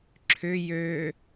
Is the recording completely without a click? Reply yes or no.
no